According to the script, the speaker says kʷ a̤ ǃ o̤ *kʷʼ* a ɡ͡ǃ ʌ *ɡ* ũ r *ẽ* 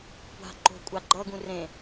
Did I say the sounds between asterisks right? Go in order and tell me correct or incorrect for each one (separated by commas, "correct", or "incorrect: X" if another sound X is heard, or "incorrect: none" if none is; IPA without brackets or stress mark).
correct, correct, correct